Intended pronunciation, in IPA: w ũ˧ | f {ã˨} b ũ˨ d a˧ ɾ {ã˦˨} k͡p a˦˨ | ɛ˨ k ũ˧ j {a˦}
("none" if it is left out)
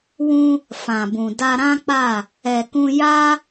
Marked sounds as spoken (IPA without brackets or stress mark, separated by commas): ã˨, ã˦, a˦